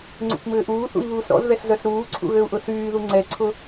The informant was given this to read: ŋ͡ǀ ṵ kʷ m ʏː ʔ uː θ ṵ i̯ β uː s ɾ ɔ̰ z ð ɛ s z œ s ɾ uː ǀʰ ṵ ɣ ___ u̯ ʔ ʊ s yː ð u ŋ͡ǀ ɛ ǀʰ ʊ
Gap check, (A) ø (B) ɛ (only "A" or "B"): A